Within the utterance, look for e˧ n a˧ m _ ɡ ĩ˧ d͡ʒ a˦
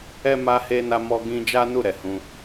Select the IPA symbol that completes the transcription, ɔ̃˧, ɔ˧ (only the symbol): ɔ˧